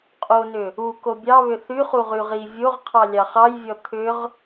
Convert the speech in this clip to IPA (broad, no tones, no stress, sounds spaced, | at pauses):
qʼ o n ʏ | u k o bʲ ɑ β ʏ θ y χ u ʁ y ʁ i vʲ o ʁ qʰ ɑ lʲ ɑ χ ɑ j vʲ ɔ t̪ʰ ʏ ʁ